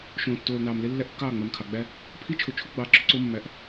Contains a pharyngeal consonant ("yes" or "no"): no